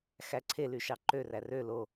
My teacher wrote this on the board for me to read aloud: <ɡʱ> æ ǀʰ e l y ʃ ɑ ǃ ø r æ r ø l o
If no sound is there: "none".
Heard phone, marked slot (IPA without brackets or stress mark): x